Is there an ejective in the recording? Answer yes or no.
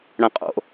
yes